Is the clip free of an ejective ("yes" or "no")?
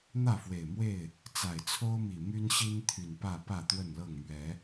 yes